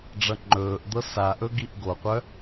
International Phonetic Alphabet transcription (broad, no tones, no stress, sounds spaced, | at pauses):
ɖ͡ʐ ʌ ŋ͡ǃ ɵː ʔ d̪ ɤ s a ʔ ɵ ɡ i ʔ ɡ o qʷ œ